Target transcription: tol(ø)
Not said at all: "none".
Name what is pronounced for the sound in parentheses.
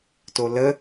ə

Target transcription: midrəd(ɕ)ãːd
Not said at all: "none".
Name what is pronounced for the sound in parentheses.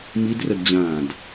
d͡ʑ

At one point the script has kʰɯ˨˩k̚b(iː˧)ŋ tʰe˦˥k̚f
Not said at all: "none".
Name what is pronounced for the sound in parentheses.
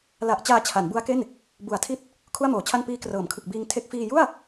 iː˧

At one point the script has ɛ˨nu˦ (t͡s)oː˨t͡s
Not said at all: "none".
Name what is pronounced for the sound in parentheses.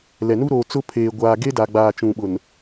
ɾ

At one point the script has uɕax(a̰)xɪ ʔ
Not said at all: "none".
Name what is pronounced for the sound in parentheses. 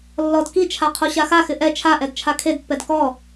a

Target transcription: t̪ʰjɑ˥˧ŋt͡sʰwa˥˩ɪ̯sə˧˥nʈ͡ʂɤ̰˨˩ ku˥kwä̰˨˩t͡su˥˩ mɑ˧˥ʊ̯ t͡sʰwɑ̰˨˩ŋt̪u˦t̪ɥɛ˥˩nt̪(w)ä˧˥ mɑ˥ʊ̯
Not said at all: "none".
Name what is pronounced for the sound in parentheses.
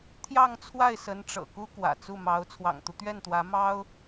w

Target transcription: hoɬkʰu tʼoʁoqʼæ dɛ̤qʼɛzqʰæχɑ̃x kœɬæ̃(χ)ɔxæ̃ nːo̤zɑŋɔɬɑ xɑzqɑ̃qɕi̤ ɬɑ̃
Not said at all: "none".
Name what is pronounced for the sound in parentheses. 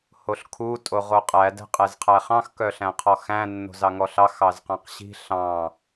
qʰ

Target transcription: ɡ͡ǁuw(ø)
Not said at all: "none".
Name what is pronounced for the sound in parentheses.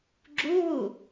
u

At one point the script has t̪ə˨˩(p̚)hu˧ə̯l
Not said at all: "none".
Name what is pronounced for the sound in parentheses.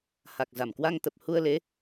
p̚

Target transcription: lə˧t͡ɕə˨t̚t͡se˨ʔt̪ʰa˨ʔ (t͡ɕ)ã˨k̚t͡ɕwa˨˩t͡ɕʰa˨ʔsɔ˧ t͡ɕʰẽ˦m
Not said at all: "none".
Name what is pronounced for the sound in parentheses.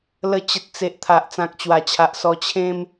t͡s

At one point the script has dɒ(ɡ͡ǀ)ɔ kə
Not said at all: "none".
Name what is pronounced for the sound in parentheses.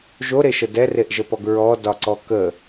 ǀ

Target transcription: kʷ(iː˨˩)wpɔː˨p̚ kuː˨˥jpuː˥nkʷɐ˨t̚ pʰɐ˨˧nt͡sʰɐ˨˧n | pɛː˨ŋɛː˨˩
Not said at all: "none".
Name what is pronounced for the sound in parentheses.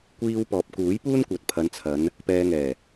iː˧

